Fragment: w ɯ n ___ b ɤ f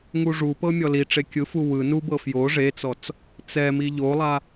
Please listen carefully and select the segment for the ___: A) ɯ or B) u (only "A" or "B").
B